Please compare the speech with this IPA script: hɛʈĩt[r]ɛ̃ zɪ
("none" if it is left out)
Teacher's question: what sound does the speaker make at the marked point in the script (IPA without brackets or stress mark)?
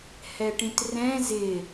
r